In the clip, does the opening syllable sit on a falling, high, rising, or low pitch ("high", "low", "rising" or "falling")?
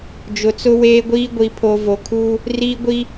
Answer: low